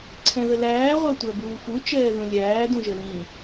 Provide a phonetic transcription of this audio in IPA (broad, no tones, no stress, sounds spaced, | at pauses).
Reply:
ǀʰ ɛ̃ ð ə l æː ʁʷ æ tʷ æ b uː f u t͡ʃ ɛː ð ũ lʲ æː d ũ ʒ ə l ĩ